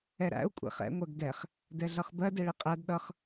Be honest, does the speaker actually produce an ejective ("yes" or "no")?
yes